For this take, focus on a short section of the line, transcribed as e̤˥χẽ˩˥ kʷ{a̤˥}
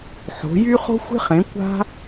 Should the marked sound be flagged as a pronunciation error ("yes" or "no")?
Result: no